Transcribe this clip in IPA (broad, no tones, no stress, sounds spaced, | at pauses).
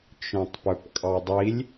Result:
t͡ʃ œ̃ tˤ p œ p kʼ ɑ dˤ i lʲ